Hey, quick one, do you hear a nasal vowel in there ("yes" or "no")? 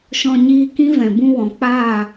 yes